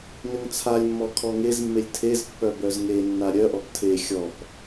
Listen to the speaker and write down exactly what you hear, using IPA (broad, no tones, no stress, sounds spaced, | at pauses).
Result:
n ʏ ŋ t͡sʰ a lʲ mː ɔ kʰ ɔ ŋ e z mː e lʲ tʰ e z pː œ b œ z ŋ e nː a ɾʲ œ ʔ ɔ p tʰ e xʲ ɔ p